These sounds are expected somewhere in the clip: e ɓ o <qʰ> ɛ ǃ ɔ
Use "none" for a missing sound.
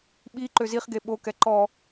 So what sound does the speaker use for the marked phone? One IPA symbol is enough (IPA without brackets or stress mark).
k